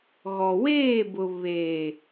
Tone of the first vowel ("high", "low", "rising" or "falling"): low